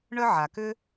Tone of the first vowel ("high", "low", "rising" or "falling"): high